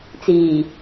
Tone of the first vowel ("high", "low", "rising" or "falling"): low